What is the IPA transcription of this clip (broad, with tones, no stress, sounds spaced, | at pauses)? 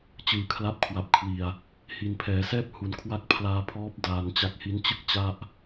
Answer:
t͡ɕ ɯː˨˩ kʰ l a˦˥ p̚ kʰ w a˨˩ p̚ kʰ w i˨˩ a̯ | h i˨˩ n pʰ ɛː˩˦ s ɛː˥˩ p̚ h u˩˦ n kʰ w a˦˥ k̚ pʰ l aː˧ pʰ ɔː˦˥ p̚ d aː˧ n t͡ɕ a˥˩ k̚ h i˦˥ n t͡ɕ ɯ˥˩ k̚ t͡ɕ a˥˩ ʔ